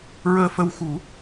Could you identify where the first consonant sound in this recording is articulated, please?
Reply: alveolar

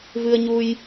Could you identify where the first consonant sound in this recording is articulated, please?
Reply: labial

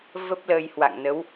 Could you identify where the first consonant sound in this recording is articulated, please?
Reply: labial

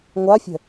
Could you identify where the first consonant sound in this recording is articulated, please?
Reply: velar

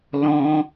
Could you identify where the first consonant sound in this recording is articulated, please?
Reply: alveolar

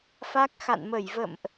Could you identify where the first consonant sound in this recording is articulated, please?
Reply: labial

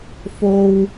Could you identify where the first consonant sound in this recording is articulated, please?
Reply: labial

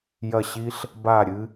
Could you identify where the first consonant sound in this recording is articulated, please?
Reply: palatal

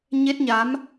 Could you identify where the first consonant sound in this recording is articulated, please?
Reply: palatal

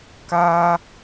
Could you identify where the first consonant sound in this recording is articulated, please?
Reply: velar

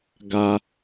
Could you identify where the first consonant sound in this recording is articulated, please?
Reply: velar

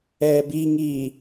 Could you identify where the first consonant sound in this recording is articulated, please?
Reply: labial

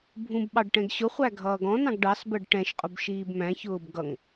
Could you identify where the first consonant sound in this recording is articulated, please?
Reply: labial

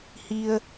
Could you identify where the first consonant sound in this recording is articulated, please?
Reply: glottal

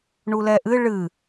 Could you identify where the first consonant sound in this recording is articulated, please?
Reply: retroflex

